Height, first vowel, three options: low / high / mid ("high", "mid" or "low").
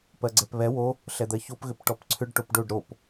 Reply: mid